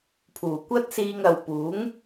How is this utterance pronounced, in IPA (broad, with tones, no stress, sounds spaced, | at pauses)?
pʰ uː˨˩ kʷ ɐ˥ t̚ s iː˧ ŋ ɐ˨ w p uː˨˥ ŋ